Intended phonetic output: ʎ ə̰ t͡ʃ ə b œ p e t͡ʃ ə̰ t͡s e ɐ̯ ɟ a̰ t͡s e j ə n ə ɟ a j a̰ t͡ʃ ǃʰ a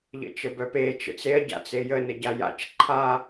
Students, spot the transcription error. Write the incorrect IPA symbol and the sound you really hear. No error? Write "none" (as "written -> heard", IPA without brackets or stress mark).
none